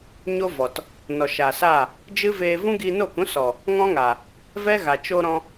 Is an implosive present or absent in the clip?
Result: absent